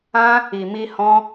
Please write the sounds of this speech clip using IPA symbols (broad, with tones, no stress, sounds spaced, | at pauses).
ã˦ | i˨ m i˧ h ɔ̃˦